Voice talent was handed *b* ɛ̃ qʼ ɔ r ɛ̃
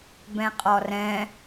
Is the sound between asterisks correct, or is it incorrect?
correct